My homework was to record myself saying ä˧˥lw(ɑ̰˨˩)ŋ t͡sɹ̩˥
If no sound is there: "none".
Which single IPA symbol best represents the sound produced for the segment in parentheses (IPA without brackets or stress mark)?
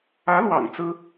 ɑ̰˨˩